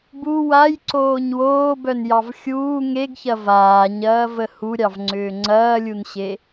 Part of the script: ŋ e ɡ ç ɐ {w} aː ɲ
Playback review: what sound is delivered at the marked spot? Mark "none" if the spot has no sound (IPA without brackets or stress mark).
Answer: v